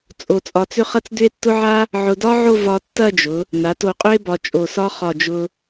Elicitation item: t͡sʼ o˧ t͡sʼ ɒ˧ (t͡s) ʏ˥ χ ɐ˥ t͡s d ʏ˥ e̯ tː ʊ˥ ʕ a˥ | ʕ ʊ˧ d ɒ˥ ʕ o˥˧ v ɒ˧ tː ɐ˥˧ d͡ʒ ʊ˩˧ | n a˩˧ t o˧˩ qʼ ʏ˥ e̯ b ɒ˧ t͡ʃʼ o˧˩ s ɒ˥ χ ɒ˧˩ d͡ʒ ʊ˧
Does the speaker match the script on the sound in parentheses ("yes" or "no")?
yes